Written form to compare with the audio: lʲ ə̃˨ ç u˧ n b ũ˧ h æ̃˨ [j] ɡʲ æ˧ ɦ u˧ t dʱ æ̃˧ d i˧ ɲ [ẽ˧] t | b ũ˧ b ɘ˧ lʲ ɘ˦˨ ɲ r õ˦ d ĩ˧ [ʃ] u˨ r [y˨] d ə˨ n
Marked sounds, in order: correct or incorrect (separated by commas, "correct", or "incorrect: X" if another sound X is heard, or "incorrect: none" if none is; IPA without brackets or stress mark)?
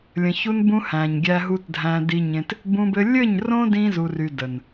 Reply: incorrect: ɲ, correct, incorrect: z, correct